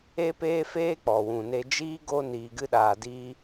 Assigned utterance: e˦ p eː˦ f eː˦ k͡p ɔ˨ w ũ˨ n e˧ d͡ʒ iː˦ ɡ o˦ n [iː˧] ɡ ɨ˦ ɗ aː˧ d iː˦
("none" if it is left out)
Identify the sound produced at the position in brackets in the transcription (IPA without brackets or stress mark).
iː˧